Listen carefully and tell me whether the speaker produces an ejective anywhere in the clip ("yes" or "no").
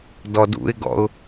no